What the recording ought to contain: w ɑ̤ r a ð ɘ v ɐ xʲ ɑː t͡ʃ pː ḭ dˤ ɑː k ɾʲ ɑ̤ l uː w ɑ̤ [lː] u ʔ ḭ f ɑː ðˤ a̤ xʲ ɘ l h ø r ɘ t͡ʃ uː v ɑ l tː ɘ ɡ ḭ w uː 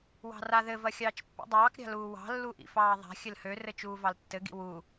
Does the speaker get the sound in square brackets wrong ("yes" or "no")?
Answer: no